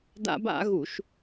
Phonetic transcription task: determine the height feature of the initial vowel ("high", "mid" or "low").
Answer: low